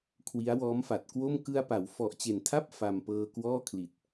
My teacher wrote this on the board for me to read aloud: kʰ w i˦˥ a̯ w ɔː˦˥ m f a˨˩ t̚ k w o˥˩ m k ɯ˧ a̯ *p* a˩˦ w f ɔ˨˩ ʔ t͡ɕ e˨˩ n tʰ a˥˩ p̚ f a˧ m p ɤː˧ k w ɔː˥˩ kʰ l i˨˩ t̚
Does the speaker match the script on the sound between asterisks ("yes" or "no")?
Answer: yes